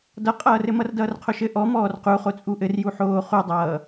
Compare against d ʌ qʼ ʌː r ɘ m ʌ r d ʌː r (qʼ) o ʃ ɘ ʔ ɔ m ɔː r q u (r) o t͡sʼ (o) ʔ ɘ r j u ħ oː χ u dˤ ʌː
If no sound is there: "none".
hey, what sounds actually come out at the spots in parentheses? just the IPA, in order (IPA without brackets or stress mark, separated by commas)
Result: qʰ, χ, u